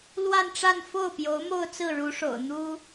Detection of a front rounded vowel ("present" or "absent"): absent